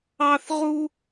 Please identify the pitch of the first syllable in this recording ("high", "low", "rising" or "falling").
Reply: high